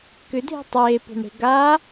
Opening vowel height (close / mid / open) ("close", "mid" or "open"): close